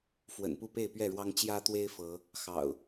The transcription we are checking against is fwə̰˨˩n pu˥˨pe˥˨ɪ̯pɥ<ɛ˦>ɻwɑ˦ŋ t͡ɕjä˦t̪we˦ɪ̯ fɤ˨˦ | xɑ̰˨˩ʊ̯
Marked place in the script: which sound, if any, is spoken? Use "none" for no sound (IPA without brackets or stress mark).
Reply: ɛ˥˨